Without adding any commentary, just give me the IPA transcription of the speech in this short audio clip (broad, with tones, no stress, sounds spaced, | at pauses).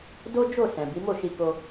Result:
d o˦ d͡ʒ o˦˨ s ɛ̃˨ b i˨˦ m o˦˨ ʃ i˧ k o˧